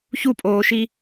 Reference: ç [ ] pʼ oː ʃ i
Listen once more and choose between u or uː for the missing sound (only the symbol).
u